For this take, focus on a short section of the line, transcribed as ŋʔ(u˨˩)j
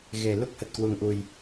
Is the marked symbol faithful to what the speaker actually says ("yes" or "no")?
yes